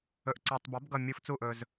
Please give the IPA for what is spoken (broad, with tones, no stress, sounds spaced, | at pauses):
ɵ˨ ʔ ǀ ɑ˨ tˤ b ʌ˩˥ b ɡ ʌ˥˨ mʲ u˧˥˧ f t͡s u˥˨ ʔ ɵ˨ z